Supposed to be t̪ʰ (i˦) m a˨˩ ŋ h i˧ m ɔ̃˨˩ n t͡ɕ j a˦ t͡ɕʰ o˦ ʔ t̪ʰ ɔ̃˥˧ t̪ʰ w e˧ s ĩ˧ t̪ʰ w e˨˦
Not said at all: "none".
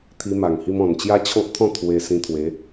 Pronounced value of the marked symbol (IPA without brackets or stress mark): i˧